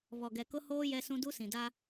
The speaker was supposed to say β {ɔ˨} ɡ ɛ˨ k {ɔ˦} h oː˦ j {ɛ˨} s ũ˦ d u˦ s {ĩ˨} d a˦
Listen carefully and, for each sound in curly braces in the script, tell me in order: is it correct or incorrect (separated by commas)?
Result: correct, incorrect, incorrect, correct